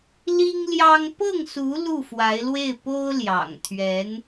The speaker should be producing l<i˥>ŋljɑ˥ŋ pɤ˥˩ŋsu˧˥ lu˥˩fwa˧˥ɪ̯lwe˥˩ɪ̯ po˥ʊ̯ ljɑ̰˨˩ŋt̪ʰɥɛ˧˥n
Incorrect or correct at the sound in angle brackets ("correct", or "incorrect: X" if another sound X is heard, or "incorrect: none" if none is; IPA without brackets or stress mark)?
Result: correct